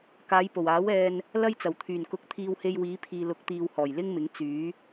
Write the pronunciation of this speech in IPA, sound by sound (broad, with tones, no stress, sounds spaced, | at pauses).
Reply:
k aː˨˧ j p o˨˩ w aː˨˥ w ɛː˧ n | l ɐ˥ j t͡s ɐ˨˩ w t̪ʰ yː˨˩ n k ʊ˨˥ k̚ t̪ʰ iː˧ w h e˧ j w iː˨˧ pʰ iː˨ l ʊ˨˥ k̚ t̪ iː˨ w h ɔː˨˩ j l ɪ˥ ŋ m ɪ˨˥ ŋ t͡s yː˨˥